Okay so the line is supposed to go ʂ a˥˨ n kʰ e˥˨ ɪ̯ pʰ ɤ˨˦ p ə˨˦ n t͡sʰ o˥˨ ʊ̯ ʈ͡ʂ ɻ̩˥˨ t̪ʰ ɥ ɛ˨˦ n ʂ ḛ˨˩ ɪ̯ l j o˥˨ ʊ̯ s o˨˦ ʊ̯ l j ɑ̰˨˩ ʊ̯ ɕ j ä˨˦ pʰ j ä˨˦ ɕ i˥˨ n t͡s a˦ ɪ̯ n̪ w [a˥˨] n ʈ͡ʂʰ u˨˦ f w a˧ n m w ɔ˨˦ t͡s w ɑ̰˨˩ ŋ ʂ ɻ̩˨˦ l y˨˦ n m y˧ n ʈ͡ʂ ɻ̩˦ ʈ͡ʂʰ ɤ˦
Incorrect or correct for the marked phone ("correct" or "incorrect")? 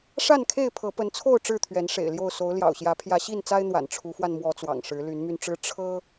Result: incorrect